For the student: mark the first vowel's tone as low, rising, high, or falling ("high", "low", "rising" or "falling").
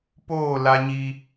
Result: falling